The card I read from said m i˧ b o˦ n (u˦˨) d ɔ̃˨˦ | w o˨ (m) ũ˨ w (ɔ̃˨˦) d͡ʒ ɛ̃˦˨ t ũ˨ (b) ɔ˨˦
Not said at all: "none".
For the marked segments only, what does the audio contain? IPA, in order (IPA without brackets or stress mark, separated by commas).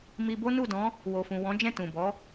u˦˨, f, ɔ̃˨˦, b